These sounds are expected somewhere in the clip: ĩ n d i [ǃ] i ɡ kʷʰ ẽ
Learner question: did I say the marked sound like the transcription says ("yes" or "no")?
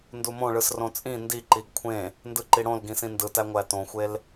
yes